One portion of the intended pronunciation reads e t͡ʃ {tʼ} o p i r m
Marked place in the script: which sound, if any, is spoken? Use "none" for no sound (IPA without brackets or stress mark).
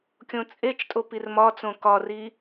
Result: tʼ